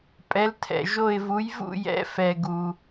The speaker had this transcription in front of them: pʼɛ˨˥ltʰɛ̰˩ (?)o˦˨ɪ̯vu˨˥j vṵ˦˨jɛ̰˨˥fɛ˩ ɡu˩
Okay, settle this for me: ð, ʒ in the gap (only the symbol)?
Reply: ʒ